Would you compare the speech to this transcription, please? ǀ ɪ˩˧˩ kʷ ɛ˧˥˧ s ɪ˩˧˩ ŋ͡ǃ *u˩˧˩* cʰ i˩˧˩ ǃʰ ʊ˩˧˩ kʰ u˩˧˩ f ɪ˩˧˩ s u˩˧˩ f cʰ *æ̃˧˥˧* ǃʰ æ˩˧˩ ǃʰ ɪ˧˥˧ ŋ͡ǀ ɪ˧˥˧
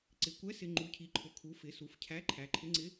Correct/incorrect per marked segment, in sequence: correct, incorrect: æ˧˥˧

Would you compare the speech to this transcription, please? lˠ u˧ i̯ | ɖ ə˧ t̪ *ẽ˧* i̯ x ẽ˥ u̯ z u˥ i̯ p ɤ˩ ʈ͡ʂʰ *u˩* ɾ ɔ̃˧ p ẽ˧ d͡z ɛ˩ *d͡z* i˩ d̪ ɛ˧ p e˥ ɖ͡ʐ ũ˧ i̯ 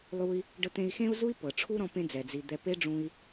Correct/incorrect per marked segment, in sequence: correct, incorrect: u˥, correct

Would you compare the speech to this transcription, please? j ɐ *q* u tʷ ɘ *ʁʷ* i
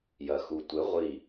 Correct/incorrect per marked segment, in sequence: incorrect: x, correct

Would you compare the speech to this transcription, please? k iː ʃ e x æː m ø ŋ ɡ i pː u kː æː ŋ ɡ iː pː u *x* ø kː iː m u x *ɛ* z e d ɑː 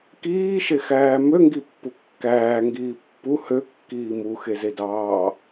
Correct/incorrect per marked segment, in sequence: incorrect: h, incorrect: e

